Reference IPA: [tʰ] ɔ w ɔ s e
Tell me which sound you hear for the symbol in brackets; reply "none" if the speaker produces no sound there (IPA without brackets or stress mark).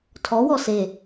tʰ